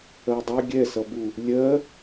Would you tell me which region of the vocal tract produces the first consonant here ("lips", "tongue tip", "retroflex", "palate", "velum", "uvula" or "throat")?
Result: tongue tip